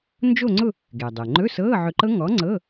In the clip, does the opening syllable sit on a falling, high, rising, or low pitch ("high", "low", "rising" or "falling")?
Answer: falling